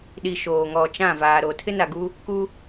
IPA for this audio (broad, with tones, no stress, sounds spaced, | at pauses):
ɗ i˨ ʃ oː˨ ŋ ɔ˨ t͡ʃ ã˦˨ v aː˨ ɾ o˨ tʰ ɪ˦ n a˨ ɡ u˦ | k u˦